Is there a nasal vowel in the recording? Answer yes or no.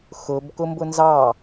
no